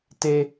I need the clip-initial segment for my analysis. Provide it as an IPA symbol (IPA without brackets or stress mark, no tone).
t